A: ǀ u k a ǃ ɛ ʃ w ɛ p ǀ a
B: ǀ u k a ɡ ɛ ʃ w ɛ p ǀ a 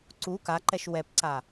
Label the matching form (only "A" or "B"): A